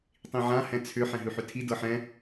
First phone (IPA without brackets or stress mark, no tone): tˤ